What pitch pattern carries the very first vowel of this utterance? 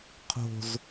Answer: low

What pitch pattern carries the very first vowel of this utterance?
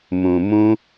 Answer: low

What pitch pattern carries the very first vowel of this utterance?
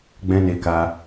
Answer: high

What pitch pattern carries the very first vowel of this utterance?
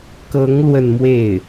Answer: rising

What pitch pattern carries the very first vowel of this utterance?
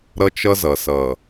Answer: high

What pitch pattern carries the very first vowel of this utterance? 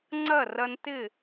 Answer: falling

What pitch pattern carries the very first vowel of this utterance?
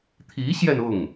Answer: rising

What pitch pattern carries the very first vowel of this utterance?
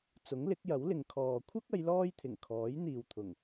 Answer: rising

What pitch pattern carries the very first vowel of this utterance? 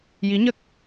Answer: rising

